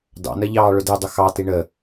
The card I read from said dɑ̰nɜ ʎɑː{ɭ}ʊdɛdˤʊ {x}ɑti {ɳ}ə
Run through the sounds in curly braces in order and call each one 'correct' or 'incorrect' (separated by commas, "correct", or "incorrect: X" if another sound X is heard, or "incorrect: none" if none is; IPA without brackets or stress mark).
correct, correct, correct